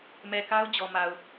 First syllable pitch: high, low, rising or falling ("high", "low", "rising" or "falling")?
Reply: low